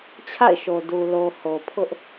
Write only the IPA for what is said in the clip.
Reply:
t͡ɕʰ a̰˦˨ ɪ̯ ʃ o˨ d u˨ l o˨ h o˨ pʰ ʊ˦ ʔ

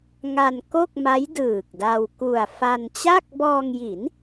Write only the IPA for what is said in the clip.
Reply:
ŋ a˧ n k o˥˩ k̚ m a˦˥ j d ɯː˨˩ k̚ d a˧ w k u˨˩ a̯ f a˧ n t͡ɕ a˥˩ k̚ b ɔː˧ ŋ j i˩˦ n

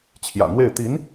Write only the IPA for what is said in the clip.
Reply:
t͡ɕʰ j ä̰˨˩ n̪ w e˥˩ ɪ̯ t̪ i˧˥ n

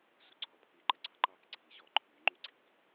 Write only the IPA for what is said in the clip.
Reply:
s u ǀʰ ɔ pʰ i ǃ ə ɡ͡ǀ ɑ ǃ ɑ k ǀʰ i ɕ ɔ ǃʰ y ŋ͡ǃ y ɡ͡ǀ i k

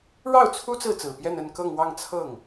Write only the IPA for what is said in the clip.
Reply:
ɻ ɑ˥˩ ʊ̯ t͡sʰ u˥ t͡s ɹ̩˥˩ t͡s ɹ̩˨˩ p j ɛ˥˧ n ə˥˧ n k ɤ˥˧ ŋ w ɑ˥˧ ŋ t͡sʰ ɤ˥˩ ŋ

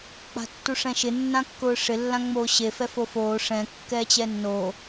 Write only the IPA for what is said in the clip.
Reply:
k͡p a̤ tː u ʂ ɛ̃ ʃ ɪ nː ã kː ʊː ʂ ɪ lː ã ŋ͡m oː ɕ e f ɛ f o f oː ʂ ɛ̃ kː ɛː t͡ɕ ɛ nː oː

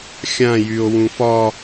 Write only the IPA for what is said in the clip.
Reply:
xʲ ã j y o̯ w ũ f ɒ

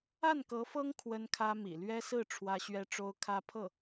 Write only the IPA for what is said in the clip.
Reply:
a˥˩ n k ɤ˧˥ f ɤ˥ ŋ kʰ w ə˥ n kʰ ä˥ m ḭ˨˩ l ɥ ɛ˥ s ɹ̩˥˩ ʈ͡ʂʰ w ä˥ ɕ ɥ ɛ˥ ʈ͡ʂ o˥ ʊ̯ kʰ ä˥ pʰ ɤ˥˩

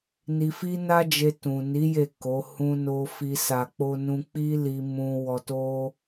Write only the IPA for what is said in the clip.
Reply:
n i˧ f i˦ n a˦ d͡ʒ e˧ t ũ˨ n i˨˦ j e˦˨ k o˨˦ h ũ˧ n o˧ f i˧ s a˧ k͡p o˦ n ũ˦ k͡p i˦ l i˧ m ũ˧ w ɔ˧ t o˦

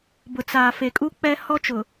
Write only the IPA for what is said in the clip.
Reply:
b ʊ˨ t͡s aː˨ f e˨ kʼ u˦ k͡p ɛ˦ h ɔ˦ t͡ʃ ʊ˨

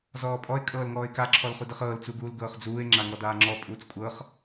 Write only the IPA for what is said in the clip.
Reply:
z ɔː pʼ ɔ ɪ̯ kʼ ɤː l ŋ ɔː ɪ̯ k a ǁʰ ɔ l χ u d ɤ χ ɤː l t͡s u ɡ uː l ɡ ɤː χ d͡z uː ɪ̯ ŋ͡ǁ a ŋ ɔ d aː ŋ͡ǁ ɔ pʼ uː t͡s kʷʼ ɤ χ

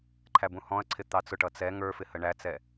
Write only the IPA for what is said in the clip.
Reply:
ǃʰ æ b ũ h ɔ̃ ɐ̯ ǀʰ ɪ t̪ ɑ t͡s ʊ ʈ ʌ t͡s ɛ ŋ ə˞ f ɪ h ə ɳ æ t͡s ɛ

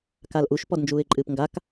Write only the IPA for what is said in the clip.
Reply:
k a l ʔ u ʃ p ɔ d n d͡ʒ uː ɪ̯ ǃʼ ɨː p ŋ ɡ a k

